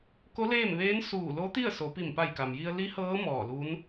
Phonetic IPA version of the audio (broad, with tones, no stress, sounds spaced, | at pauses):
k o˧˥ l eː˥˨ m ʋ eː˧˥ n s uː˧˩ l o˧˥ t̪ i˥˨ ə̯ s o˩˧ p i˧˩ m p a˧˩ j k a˩ m j i˧ ə̯ l i˧˥ h ɤː˧˥ m ɔː˧˩ l u˧˥ n